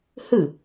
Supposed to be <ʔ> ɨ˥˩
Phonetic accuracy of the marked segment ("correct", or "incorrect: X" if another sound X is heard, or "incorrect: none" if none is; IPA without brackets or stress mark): incorrect: h